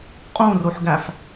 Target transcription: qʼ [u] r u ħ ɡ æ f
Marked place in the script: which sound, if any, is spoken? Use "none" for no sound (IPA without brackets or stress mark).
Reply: ũ